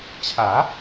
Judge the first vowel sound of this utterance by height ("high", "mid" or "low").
low